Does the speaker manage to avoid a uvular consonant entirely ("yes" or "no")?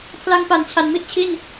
yes